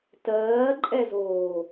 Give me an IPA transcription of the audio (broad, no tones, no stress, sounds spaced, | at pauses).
t ɜː ǃʼ ɛ z oː